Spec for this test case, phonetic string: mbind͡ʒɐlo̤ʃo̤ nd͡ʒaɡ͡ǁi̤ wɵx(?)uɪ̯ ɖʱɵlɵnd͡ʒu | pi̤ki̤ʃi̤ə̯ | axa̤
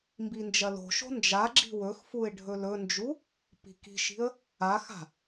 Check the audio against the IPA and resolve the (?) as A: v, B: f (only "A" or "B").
B